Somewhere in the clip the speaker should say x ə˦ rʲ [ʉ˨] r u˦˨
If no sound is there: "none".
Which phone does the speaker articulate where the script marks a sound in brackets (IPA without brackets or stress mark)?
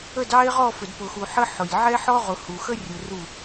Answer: ʊ˨